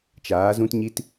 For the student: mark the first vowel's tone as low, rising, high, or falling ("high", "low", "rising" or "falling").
rising